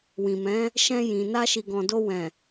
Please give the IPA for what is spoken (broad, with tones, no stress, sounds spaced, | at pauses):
w ĩ˨ m ɛ̃˨˦ | ʃ ɛ̃˧ j ĩ˨ n a˧ ʃ i˨ ɡ ɔ̃˨ d o˧ w ɛ̃˨